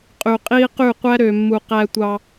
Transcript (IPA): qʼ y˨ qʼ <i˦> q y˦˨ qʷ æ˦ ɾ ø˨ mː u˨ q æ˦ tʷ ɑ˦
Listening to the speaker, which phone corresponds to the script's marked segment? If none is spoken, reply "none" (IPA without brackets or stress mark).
i˦